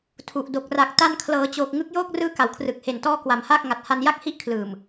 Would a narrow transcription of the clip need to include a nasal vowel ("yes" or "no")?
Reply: no